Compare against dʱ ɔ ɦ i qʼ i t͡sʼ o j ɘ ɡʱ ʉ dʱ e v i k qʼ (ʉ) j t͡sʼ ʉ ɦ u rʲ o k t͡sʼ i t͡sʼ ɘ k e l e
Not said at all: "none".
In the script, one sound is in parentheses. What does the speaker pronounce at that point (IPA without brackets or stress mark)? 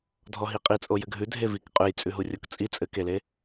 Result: ʉ